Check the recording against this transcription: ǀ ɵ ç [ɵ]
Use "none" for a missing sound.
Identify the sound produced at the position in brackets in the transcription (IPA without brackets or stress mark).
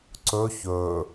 ɵ